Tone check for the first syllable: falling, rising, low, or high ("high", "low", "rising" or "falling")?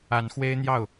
rising